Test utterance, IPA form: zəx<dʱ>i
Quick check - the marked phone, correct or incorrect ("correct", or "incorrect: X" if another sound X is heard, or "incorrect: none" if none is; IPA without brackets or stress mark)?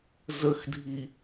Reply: correct